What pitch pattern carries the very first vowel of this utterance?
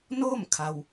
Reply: falling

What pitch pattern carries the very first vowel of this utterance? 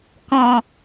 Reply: low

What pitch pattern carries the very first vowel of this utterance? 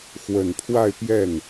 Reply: low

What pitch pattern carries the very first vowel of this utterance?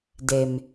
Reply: low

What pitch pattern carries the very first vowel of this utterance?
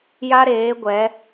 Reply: high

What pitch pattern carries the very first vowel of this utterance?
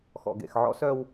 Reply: low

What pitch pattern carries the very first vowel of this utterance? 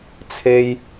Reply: high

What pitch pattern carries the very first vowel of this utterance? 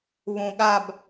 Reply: low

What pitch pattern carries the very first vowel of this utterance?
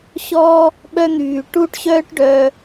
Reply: high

